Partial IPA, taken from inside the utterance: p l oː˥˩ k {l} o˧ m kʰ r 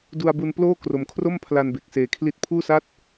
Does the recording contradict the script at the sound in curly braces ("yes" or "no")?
yes